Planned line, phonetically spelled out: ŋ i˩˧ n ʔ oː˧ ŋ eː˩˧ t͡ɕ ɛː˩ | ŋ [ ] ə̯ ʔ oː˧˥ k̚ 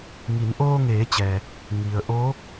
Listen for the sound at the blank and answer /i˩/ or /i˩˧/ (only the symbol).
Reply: i˩